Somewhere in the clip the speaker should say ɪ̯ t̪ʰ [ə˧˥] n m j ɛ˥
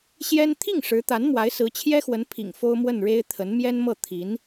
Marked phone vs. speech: correct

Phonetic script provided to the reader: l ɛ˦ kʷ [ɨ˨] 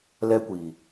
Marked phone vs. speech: incorrect: i˨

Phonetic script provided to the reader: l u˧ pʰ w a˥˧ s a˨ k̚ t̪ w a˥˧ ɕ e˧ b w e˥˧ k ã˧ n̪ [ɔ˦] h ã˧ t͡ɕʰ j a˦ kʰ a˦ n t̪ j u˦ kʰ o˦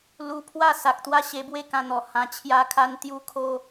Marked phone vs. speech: incorrect: ɔ˨˩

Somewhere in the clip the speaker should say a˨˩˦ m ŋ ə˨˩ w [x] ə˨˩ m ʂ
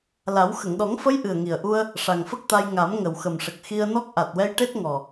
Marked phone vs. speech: correct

